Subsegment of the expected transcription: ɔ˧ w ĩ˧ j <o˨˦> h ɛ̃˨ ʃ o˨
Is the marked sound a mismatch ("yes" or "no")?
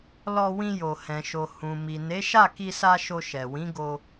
yes